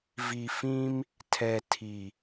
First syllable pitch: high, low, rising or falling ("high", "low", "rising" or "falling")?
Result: low